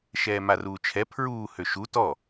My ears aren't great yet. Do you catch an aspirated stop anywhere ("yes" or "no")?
yes